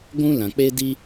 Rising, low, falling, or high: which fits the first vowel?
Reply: high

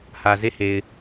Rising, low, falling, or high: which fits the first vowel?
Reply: low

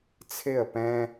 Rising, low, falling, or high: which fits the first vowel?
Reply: falling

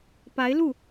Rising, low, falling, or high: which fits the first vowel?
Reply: rising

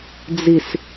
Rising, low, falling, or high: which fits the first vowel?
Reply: low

